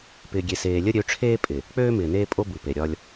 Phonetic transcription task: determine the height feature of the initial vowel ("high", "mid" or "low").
high